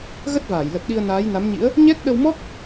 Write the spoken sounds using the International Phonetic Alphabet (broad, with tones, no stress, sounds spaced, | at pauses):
ɣ ə˦˥ t̚ v aː˧˩ j l ə˨˩ t̚ ɗ i˧ ə̯ n aː˨˦ j n a˨˦ m ɲ ḭ˧˥ ə̯ | ɲ ɛ˦˥ k̚ ɗ ə˧ w m ɔ˦˥ k̚